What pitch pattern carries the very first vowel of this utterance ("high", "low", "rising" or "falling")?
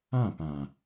falling